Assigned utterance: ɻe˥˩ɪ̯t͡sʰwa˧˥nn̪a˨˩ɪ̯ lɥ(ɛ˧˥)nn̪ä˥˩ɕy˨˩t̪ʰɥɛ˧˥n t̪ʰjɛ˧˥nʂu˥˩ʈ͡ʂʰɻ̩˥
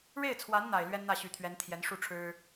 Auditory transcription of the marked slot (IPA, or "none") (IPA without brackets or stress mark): ɛ˥